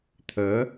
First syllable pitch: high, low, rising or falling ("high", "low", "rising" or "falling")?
rising